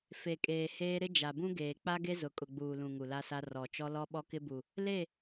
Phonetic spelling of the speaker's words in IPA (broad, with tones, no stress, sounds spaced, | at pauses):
f e˨ kʼ eː˨ h eː˦ ɾ ɪ˦ d͡ʒ a˨ b ũ˦ ɡ eː˨ k͡p a˦ ɡ e˦ z ʊ˨ kʼ ʊ˨ ɡ͡b uː˨ l ũ˨ ŋ u˨ l a˦ s a˦ r ɔ˨ t͡ʃ ɔ˦ l ɔ˦ ɓ ɔ˦ k ɪ˦ b u˨ | l e˦˨